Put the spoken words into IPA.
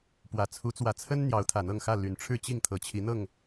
pwä˨˩t͡sʰu˨˦t͡swä˨˩t͡sʰə˦n n̪jɑ˨˦ʊ̯t̪ʰä˨˩n̪ɤ˥˨ŋxä˥˨ ly˨˩nʈ͡ʂʰɻ̩˥˨t͡ɕi˥˨ŋ t̪ʰɤ˨˩t͡ɕʰi˨˦n̪ɤ˥˨ŋ

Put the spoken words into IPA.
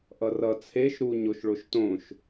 ʔʌrʌ t͡sʰeʃ ɾu ɲoʃɭoʃtõʃ

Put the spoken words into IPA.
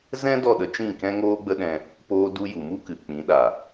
zɛ̃˦ dɔ˦˨ɗə˧t͡ʃĩ˦˨ kɛ̃˦ ŋoː˦ɡ͡bə˦ɗɛ̃˧ | poː˧du˧ ju˨mu˦kɨ˨ k͡pĩ˨˦ɗa˨

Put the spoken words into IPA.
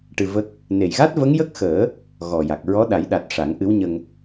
ʈɨ˧və˦˥k̚ | ne˨˩jɣa˦˥t̚ və˧˥ŋjə˦˥k̚xəː˨˩˦ | ɣɔ˨˩ja˨˩k̚ ɹɔ˧˥ɗa˨˩˦j ɗa˨˩t̚ ʂa˨˩˦ŋʔɨ˧˥wɲə˧ŋ

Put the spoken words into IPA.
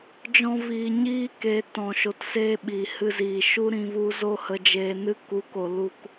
d͡ʒɔ̃˦viː˧ ɲiː˦ke˧ tɔ̃˧ʃo˧t se˧ ɓi˨ hɨ˧ziː˨ʃu˦ɾĩ˧ vu˦ zo˦ hə˧d͡ʒeː˧ nɨ˧ ku˨˦ko˨ lu˧k

